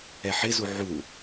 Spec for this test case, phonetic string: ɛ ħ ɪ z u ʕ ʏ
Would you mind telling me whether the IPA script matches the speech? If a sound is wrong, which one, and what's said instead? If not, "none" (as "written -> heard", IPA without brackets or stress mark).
ʏ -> u